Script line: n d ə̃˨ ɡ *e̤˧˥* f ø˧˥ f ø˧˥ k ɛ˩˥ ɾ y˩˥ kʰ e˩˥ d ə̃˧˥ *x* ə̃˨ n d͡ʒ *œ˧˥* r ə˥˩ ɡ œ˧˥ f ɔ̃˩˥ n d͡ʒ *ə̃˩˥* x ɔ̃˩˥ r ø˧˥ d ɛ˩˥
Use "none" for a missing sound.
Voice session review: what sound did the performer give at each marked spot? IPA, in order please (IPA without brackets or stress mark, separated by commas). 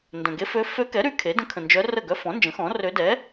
e˧˥, kʰ, œ˧˥, ə̃˩˥